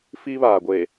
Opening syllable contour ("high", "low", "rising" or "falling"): high